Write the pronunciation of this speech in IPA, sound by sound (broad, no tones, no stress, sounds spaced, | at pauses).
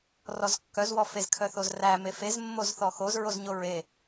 r ɔ z kː œ z w ɔ f e z kʰ œ θ o z r æ m e f e z mː o z θ ɔ x o z ɹ o z ɲ o ɹ e